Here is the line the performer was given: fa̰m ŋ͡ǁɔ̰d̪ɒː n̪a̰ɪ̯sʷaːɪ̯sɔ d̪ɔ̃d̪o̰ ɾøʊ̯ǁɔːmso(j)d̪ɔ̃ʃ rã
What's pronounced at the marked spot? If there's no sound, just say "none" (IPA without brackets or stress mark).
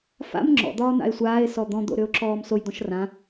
j